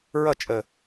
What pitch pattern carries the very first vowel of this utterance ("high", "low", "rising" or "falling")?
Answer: falling